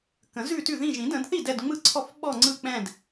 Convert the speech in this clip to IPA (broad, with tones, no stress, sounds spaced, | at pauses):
k ə̃˨˩˦ z ʉ˥˨ t ʉ˥˨ ð ĩ˥˨ ʒ ĩ˨˩˦ d ə̃˨˩˦ d θ i˥˨ d ɛ˥˨ d ŋ͡m ɯ˥˨ ǀʰ ɔ˥˨ f ɓ ɔ˥˨ ŋ͡ǀ ɯ˥˨ k͡p ɛ̃˥˨ d